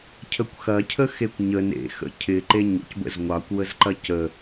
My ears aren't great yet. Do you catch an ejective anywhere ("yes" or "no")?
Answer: no